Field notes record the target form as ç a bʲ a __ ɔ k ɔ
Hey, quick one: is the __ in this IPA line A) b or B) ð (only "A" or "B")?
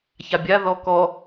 B